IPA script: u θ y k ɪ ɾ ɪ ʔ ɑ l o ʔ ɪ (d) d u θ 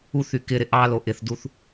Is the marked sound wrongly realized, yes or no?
yes